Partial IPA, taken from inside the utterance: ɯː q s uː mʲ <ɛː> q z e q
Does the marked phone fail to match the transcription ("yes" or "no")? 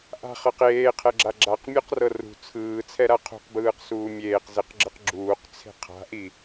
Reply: yes